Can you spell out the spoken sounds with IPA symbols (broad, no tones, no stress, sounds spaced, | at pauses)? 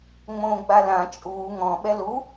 ŋ͡m õː ɡ͡b a l ã t͡ʃʼ uː ŋ ɔ̃ ɓ ɛ l u